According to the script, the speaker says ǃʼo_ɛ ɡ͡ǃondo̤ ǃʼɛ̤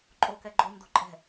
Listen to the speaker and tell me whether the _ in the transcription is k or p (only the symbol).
k